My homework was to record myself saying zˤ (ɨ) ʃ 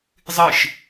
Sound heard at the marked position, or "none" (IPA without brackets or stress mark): ɨ